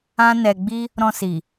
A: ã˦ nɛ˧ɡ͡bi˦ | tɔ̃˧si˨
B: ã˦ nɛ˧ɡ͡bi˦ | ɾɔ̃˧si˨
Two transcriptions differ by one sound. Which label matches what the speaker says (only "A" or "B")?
B